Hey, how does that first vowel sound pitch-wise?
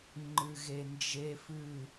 low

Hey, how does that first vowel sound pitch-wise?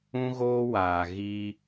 high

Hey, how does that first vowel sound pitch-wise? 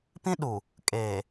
high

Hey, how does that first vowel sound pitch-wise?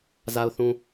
low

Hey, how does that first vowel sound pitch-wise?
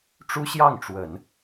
high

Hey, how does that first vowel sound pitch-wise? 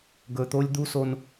low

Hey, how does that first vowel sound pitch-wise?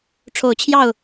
low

